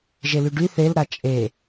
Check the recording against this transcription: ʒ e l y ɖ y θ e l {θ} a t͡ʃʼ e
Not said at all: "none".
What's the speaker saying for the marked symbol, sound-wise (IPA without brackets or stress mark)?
ɾ